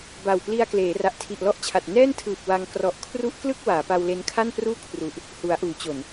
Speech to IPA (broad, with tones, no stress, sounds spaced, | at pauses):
b a˨˩ w p l i˧ a̯ k l eː˩˦ r a˨˩ ʔ tʰ i˨˩ ʔ l ɔ˥˩ ʔ t͡ɕʰ a˨˩ t̚ n ɛː˥˩ n tʰ ɯː˨˩ p̚ w a˧ ŋ k r ɔ˨˩ ʔ kʰ r u˦˥ ʔ k l ɯ˥˩ k̚ w aː˩˦ p a˧ w l e˦˥ n kʰ a˥˩ n p r uː˥˩ kʰ r u˨˩ ʔ | h u˩˦ a̯ ʔ uː˩˦ t͡ɕ o˨˩ n